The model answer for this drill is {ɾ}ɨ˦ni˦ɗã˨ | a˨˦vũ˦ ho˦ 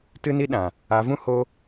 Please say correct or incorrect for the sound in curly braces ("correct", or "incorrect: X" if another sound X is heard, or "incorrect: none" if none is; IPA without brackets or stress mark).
incorrect: t